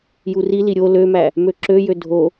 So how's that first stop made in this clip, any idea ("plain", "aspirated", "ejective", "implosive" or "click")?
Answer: click